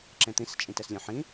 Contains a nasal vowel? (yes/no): yes